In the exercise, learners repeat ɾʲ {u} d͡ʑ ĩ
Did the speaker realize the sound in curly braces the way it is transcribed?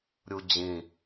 yes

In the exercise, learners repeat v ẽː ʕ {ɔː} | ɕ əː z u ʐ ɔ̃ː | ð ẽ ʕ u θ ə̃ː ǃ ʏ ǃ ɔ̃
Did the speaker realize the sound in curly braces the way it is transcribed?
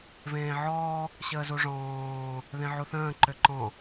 yes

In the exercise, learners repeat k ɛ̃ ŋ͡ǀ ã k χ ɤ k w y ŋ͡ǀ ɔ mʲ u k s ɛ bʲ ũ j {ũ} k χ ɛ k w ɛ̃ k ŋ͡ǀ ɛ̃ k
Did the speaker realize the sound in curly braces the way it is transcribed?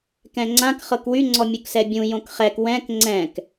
no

